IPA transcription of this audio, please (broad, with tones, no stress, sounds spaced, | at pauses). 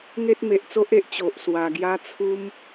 ŋ e˦ t̚ m e˨ ʔ t͡s o˦ ʔ e˦ ʔ t͡ɕ o˨ ʔ s w a˨˩ ɡ j a˦ t͡sʰ u˦ m